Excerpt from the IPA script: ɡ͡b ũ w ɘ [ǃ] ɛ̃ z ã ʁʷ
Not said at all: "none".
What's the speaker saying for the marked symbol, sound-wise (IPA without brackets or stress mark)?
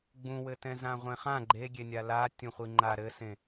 t